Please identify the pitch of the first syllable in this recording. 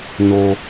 low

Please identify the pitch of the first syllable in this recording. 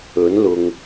rising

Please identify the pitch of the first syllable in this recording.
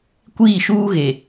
falling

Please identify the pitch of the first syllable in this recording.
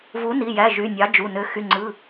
rising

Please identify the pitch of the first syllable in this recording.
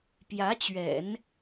rising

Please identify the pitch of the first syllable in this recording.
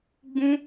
high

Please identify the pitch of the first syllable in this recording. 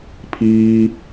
low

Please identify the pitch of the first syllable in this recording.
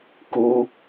high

